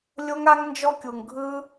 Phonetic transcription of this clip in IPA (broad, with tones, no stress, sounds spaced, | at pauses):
lʲ o˦ ŋ a˦ ŋ n d͡ʒ ɔ˦ kʲ u˧ ŋ ɡʱ ɯ˦